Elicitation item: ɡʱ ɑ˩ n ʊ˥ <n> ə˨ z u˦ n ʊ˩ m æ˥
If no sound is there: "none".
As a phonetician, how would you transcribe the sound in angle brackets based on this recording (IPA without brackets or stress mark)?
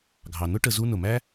ʈ